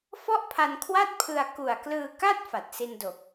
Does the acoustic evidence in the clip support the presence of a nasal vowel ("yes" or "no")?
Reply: no